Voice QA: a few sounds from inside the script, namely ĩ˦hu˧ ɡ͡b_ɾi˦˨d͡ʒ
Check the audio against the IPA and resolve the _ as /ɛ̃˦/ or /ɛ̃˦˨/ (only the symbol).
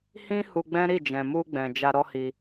ɛ̃˦